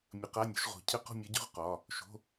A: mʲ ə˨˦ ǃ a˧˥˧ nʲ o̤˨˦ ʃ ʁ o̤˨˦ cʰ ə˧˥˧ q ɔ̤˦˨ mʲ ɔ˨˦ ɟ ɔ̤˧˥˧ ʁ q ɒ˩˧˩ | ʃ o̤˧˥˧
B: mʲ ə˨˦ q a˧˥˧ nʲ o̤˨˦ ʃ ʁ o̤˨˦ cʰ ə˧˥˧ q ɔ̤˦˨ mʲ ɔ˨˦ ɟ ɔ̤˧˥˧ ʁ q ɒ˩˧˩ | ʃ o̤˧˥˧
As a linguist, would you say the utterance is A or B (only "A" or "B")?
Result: B